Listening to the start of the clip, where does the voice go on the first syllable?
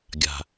low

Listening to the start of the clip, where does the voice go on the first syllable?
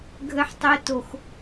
high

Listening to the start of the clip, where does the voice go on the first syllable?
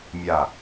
falling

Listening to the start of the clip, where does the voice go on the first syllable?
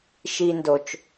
high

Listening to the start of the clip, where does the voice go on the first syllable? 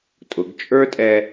rising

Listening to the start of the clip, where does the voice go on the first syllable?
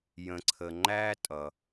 low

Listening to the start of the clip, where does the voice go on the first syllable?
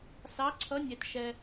rising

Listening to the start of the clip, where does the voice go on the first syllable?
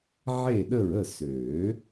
falling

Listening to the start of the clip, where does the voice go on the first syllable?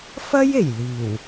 high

